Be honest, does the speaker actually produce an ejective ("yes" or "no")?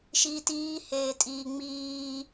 yes